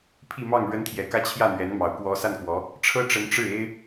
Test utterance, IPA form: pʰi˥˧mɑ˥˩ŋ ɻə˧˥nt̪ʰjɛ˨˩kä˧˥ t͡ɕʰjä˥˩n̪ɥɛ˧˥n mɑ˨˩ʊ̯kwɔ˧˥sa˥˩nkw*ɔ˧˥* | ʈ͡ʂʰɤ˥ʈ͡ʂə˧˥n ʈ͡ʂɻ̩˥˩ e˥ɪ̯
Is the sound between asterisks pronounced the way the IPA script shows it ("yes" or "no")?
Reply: yes